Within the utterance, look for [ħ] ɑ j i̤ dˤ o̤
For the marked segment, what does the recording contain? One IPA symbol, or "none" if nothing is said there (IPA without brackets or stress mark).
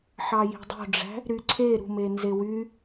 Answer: ħ